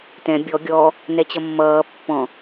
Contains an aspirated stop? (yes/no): no